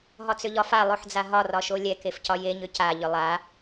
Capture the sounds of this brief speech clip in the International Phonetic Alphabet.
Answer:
ɦ ɒ t͡s ʏ ʎ ɒ f a lˠ o ħ d͡z a ɦ ɒ r ɒ ʃ o lʲ ɛ k e f c ɒ j e ɲ ʏ c a ʎ ʏ lˠ a

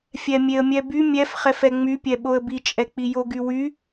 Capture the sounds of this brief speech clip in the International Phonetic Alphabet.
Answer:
fʲ ɛ mʲ e ə̯ mʲ ɛ b y mʲ ɛ f χ ɛ f ɛ ŋ͡m y pʲ ɛ ɓ o ə̯ b i t͡ʃʼ ɛ k͡p i j o ɡ y w y

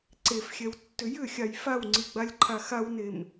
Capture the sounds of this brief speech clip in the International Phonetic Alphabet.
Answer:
ǀ e f xʲ ɛ w tː ʏ j ʏ xʲ a j f a w ŋ͡ǀ i ɡ͡b a lʲ ǃʰ a x a w n e m

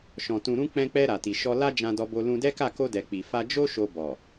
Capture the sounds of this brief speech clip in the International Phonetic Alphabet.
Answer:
ʃ ɔ̃˨ t ũ˨ ɾ ũ˧ k͡p ɛ̃˧ k͡p ɛ˧ ɾ a˨ t i˨ ʃ ɔ˧ l a˦ d͡ʒ ã˧ d ɔ˧ b o˧ l ũ˧ d ɛ˦ k a˦˨ k o˧ d ɛ˨ k͡p i˨ f a˧ d͡ʒ o˦ ʃ o˧ b ɔ˨

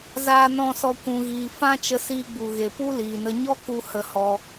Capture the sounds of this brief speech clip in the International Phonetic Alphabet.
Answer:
z aː˨ n ɔ̃˨ s ɔ˨ kʷ ũ˧ ɣ iː˧ f ã˦ t͡ʃ ə˧ s iː˧ ɡ͡b u˨ ɣ e˨ p u˦ l iː˨ n ə˧ ɲ ɔ˦ k u˧ h ə˧ h ɔ˧

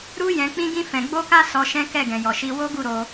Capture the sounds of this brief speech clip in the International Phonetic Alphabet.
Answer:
ɾ u˦ j ɛ̃˧ k͡p ĩ˦ ɡ ĩ˦ f ɛ̃˧ ɡ͡b o˦ k a˦ s ɔ˧ ʃ ɛ̃˦ k ɛ˦˨ ɡ ɛ̃˨ j ɔ˨ ʃ i˧ w o˦ ɡ u˦˨ ɾ o˧

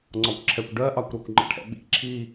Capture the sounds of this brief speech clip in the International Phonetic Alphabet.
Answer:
ŋ͡ǀ ɒ kʷ ǁʰ ɛ kʷ ɖ ɜ ʔ ɑ kʷ ɾ ɔ kʷ ŋ͡ǃ ə̰ ʈʰ ɛ̰ ɓ ḭ ǁʰ i

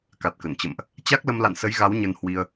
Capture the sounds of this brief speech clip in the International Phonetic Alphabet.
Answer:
k a˨˩ t̚ k ə˧˩ n t͡ɕ ə̰˧˨ m ʔ | t͡ɕ a˦˥ k̚ l ə˧ m l a̰˧˨ n s ə˨˦ j ɣ a˨˦ w ɲ ə˧ n h w i˧ ə̯

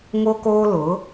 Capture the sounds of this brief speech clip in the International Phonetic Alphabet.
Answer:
ŋ o˦ k oː˦ l ʊ˨˦

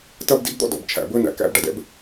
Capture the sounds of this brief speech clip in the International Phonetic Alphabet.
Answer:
t ɐ˥ b d ḭ˥ b d̪ ɔ̰˥ d ɔ̰˨ b t͡ʃʰ æ̰˨ b ɵ˥ n æ̰˨ k æ̰˦ b ɖ ɐ˩ d ɛ̰˦ b

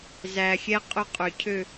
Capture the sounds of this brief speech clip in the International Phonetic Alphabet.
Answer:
z æ˨ xʲ ɛ˦˥ qʼ ɵ˦˨ qʼ ø˨ cʰ ø˦˨

